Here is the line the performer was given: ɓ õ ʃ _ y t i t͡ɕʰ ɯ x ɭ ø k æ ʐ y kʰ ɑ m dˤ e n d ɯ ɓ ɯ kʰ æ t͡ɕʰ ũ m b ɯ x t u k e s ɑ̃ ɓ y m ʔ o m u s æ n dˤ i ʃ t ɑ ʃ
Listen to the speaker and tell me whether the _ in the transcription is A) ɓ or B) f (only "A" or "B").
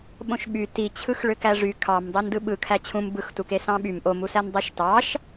A